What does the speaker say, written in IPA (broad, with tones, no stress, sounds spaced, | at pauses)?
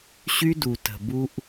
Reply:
ɕ y˦ d u˨ t ə̤˨ b u˦ ʔ